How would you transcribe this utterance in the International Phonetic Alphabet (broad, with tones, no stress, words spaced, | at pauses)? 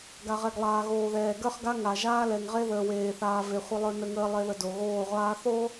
ɡa˨ʁɛ˨ɡlˠaː˨ ɣoː˨ðɛː˨ ɡə˞˦χɡa˦ŋa˨ ʒaː˦lɛ˨ŋʁe˦ ðəː˨weː˨θaː˨ve˨ χʷə˨lˠə˞˨ nə˦ŋəː˦ lˠe˨ðə˨ do˨ɣoː˦˨ʁʷaː˦ θo˦